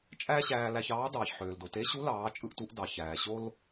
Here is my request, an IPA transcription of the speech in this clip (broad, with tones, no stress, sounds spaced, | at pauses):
t͡ʃʼ æ˥ ɕ æː˧ l æ˧ ç ɑː˧˥ d ɑː˩ ç ħ øː˩ l d o˩ t e˧˥ ɕ u˧˥ l ɑː˩˧ t͡ʃʼ ɯ˧ ʔ t u˩˧ ʔ d ɑ˩ ç æː˩ ɕ o˥ l